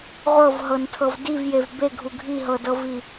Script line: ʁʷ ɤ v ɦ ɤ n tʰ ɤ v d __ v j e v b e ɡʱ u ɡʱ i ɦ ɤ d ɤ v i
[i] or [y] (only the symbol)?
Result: i